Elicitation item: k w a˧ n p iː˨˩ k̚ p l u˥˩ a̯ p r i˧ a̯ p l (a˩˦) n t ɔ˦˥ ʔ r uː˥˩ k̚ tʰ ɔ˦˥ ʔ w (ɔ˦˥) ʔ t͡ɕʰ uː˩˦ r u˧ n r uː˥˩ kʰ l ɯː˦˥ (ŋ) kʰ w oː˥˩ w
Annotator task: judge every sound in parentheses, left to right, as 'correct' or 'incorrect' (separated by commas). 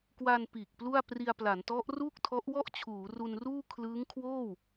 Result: correct, incorrect, correct